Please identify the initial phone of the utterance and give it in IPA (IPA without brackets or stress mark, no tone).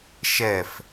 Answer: ʃ